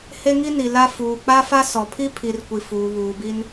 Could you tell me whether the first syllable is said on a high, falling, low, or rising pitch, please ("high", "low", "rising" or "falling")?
high